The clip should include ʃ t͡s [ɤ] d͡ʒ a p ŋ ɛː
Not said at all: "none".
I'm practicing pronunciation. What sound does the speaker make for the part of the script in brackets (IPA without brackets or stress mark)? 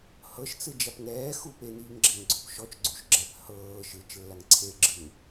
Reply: ɯ